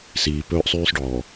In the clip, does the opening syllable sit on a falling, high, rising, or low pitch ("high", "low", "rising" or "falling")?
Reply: low